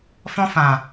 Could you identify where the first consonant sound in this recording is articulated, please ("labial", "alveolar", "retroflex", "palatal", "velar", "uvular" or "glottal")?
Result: labial